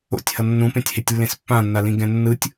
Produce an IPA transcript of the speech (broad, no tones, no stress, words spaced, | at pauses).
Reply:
o̰tʲhʌ nːũpẽtʲhetʲlːẽs pːãnːalĩɡɛ̃ nːɯtʲ